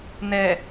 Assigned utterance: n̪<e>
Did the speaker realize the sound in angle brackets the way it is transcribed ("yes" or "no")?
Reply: no